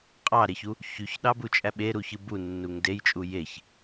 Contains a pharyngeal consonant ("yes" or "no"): no